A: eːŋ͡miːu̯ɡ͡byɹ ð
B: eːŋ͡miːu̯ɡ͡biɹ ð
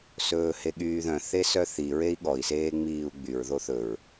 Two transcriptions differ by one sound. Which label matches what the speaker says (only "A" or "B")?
A